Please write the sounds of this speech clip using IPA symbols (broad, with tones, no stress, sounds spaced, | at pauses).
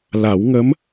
l a˨˩˦ w ŋ ə˧˥ m